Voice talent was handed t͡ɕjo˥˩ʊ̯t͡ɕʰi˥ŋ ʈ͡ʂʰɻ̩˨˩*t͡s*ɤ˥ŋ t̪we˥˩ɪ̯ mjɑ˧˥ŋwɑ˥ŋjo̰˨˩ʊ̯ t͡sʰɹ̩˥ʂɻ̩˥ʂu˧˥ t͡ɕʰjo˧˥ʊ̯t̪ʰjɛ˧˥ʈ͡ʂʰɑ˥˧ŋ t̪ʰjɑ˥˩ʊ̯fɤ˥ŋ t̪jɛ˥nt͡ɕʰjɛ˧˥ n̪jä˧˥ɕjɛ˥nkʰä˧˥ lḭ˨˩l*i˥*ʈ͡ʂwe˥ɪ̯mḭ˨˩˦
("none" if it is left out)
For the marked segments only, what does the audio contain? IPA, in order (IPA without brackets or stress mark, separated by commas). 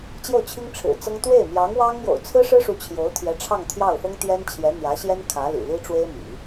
t͡s, i˥